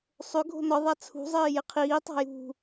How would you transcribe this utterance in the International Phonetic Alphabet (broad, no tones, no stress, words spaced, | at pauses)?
sˤʏɡʱo̤ nɒðˤa t͡sʰṳzˤɪːjɪ qʰiːtˤa̤ jṳ